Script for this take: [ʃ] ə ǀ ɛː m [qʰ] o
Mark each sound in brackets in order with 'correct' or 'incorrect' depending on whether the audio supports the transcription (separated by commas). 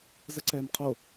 incorrect, correct